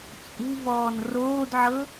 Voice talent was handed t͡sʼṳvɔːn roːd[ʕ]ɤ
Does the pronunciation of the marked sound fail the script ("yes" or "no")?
no